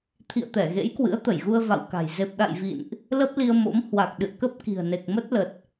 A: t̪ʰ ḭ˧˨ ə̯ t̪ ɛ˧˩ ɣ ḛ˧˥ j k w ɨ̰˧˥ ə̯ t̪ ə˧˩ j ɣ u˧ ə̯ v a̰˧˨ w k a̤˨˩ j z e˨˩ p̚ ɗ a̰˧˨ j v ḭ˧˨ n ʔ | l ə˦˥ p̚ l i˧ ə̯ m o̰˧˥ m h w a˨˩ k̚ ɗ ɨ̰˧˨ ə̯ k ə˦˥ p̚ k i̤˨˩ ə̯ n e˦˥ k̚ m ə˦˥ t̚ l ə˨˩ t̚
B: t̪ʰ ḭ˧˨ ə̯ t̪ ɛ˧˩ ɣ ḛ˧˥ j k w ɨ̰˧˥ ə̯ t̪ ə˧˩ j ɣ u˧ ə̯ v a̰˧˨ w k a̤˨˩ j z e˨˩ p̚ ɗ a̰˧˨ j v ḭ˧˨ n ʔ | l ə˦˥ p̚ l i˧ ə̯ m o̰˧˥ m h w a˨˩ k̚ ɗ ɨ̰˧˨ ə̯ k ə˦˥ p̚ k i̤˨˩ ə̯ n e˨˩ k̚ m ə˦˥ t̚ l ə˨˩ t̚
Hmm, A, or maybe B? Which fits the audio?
B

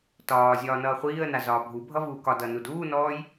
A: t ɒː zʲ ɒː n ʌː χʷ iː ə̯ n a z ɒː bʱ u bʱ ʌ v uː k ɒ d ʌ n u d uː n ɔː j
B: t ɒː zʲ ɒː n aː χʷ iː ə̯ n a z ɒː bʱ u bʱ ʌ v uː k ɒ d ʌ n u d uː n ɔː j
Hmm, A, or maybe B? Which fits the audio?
A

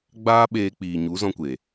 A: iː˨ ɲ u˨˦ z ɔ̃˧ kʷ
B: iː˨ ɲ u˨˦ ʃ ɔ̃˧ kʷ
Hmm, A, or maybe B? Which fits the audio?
A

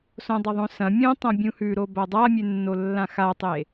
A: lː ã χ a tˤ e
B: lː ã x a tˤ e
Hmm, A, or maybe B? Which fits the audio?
B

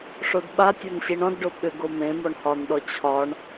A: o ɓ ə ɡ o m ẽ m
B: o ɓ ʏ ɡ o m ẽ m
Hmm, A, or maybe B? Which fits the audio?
B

